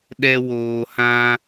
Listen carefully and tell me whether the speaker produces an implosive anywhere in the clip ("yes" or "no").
yes